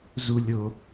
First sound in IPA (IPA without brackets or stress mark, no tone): z